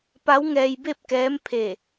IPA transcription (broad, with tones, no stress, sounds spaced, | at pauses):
p a˧˥ w ŋ ɛː˧ j b e˥˨ p̚ k ɛː˧˥ m pʰ e˧˩